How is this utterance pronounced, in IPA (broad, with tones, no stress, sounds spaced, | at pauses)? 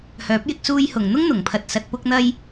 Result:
h œː˨˥ p̚ j ɪ˧ k̚ s uː˧ j h ʊ˨˩ ŋ n̪ ʊ˥ ŋ n̪ ʊ˨˩ ŋ pʰ ɐ˨ t̚ s ɐ˨ t̚ p ʊ˧ k̚ n̪ ɐ˧ j